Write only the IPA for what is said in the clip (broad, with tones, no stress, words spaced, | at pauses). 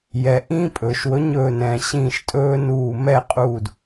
jɛ˩ ʔĩː˦pʼɵː˩ʃwɵ˨˥ ɲɵː˧˩nɛ̃ː˩ɕĩː˧˩ʃtʼɵː˦ nuː˧˩ mɛ˥˨qʼuː˧˩d